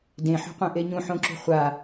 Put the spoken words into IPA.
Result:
d ẽ ħ o̤ qʷ ẽ ʔ e ɲ ũ ħ õ ǁ ṳ χʷ a

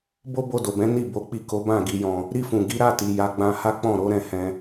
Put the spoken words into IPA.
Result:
b o˦ b o˧ d o˨ b ɛ̃˨˦ n i˦˨ b o˨˦ k͡p i˦˨ k o˨˦ b ã˦˨ ɡ i˧ j ɔ̃˧ | ɾ i˧ f ũ˨ ɡ i˨˦ ɾ a˦˨ t i˨ j a˨˦ ɡ͡b ã˧ h a˦ k͡p ɔ̃˦˨ ɾ o˨˦ ɾ ɛ̃˦˨ h ɛ̃˧

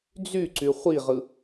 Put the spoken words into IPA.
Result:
d͡z y ǀ y χʷ i ʁ ɯ

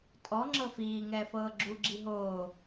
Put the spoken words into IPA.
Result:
tʼ ɔ ŋ͡ǁ ɤ f iː ŋ ɛː f ɤː ɡ͡ǁ u ɡ͡ǁ i ɦ oː

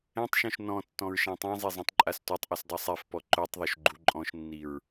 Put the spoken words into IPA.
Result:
ɛ̃ tˤ ʃ ɔ̃ ʃ n ɔ̃ tː ɔ̃ ɹ ʃ ã tˤ ã zˤ e zˤ ɛ̃ tˤ ǃʼ a s tʷ a tˤ ʔ u s dˤ i sˤ ɛ f p ɔ ǃ o tˤ ðˤ o ʃ ɡ͡ǃ u ǃʼ ɔ̃ ʃ nː i ɹ

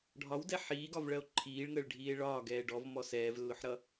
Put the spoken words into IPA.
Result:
ɖʱ ɒ w d ɛ ħ iː ɡ ɒ v ɭ ɜ o̯ ǃʰ iː ɭ ŋ əː ɭ ɖʱ iː e̯ ɭ ɒː ɡ ɛː ɖ ɔ v m ɔ s ɛː v lː ʊ ħ ɾ ʌ

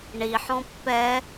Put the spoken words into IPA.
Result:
ɳ i ħ ɔ̃ pː ɛ

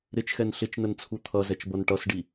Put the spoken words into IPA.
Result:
ɾ ɪ t͡ʃ x ɛ n ɬ ɪ t͡ʃ n ə n t͡sʰ u t̪ʰ ʌ z ɛ t͡ʃ b ʌ n ʈ ʌ s ɖ i

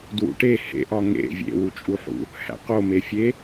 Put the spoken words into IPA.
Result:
d w ṵ ʈ e h ḛ ʔ ɒ ŋ ḛ vʲ ḛ w u t͡ʃʼ u ħ ṵ | h æ̰ q o m e fʲ e

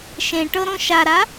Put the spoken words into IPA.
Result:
ʃ ẽ ʈ ɤ ɾ õ ʃ a ɾ a

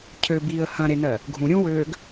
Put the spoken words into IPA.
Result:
cʰ ø b iː ə̯ h ɐ̃ ɾ e n ɜ | ɡʱ ũ ɾʲ ũ w øː ɡ

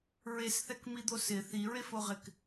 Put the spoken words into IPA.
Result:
ɹ e s θ ɛ k m i d̪ o s ɪ θ i ɹ e f o ʁ ɪ k

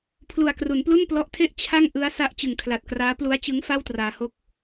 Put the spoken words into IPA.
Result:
pʰ l u˨˩ a̯ k r u˩˦ n p l u˥˩ n p l ɔ˦˥ ʔ tʰ e˥˩ ʔ t͡ɕʰ a˥˩ ŋ ʔ ɯ˦˥ a̯ s a˥˩ ʔ t͡ɕ ɯ˨˩ ŋ kʰ l a˨˩ t̚ k r aː˦˥ p l u˦˥ a̯ t͡ɕ ɯ˦˥ ŋ f a˥˩ w t r aː˧ h o˥˩ k̚

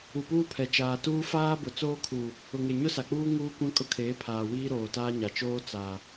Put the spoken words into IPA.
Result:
u˨ p uː˦ pʰ ɛ˨ t͡ʃ aː˨ t uː˦ f aː˦ b ʊ˨ t͡s oː˦ kʰ u˨ | ʊ˨ ŋ e˨ ɲ ʊ˦ s a˨ k͡p uː˦ ŋ uː˦ kʷ ã˦ kʼ ʊ˦ kʰ eː˨˦ pʰ aː˨ w iː˦ ɾ oː˨ t aː˦ ɲ a˨ t͡ʃ oː˦ t͡s a˨

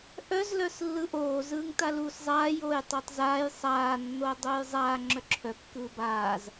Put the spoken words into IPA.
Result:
ʔ œ z l œ s lː ɯ ʔ oː z ɯː ŋ t a l uː s zˤ aː j oː j tˤ o tˤ z aː j sˤ aː nː oː dˤ uː j zˤ aː ŋ͡ǁ œ ǁʰ œ kː ɯː b aː z

